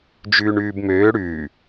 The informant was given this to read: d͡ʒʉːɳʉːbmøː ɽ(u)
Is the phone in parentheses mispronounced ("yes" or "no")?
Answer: yes